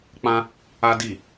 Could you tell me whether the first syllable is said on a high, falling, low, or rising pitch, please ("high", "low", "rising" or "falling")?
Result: high